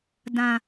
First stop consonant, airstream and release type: plain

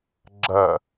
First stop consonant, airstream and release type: click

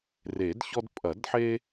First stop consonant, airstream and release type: plain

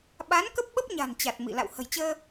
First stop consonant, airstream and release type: implosive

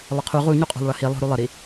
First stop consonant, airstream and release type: aspirated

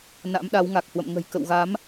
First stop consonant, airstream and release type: implosive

